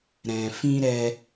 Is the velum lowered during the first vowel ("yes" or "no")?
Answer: yes